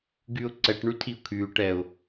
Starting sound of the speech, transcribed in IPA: ɡ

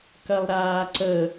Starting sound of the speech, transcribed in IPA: k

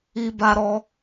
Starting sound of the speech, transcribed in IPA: i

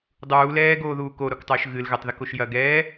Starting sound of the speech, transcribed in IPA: dˤ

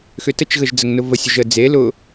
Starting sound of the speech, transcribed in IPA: x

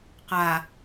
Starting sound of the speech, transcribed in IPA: q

